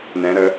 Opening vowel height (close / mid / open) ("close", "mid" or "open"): mid